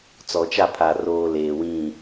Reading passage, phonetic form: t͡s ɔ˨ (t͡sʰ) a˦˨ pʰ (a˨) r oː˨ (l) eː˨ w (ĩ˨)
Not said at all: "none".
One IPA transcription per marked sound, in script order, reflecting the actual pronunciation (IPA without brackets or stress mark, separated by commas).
t͡ʃ, a˨, l, ĩ˨